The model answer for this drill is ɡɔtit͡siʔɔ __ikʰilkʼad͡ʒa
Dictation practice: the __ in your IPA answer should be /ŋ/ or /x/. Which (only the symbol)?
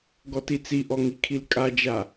ŋ